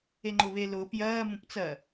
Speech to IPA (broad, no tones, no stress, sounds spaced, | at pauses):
e ŋ͡ǃ ʊː β e l ʊː p j ɜː m ũ p t͡s ɜ